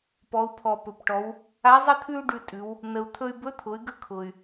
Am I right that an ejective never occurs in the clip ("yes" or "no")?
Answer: no